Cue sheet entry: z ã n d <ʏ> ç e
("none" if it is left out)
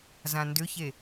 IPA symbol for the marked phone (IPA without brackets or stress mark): ʏ